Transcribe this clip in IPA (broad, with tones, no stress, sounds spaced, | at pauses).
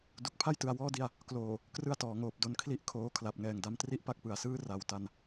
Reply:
d u˨˩ k̚ pʰ a˥˩ j t ɯ˩˦ a̯ w ɔː˥˩ d i˥˩ a̯ | k l oː˨˩ | k r ɯ˥˩ a̯ t ɔː˩˦ ŋ oː˨˩ p̚ d o˦˥ n kʰ l i˥˩ ʔ kʰ oː˦˥ kʰ l a˨˩ p̚ ŋ ɛː˨˩ ŋ d a˧ m t r i˥˩ ʔ p a˥˩ k̚ p ɯ˨˩ a̯ s ɯː˥˩ r a˩˦ w t a˧ n